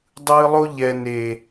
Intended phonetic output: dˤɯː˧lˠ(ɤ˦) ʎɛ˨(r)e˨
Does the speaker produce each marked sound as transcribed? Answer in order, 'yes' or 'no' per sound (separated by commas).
no, no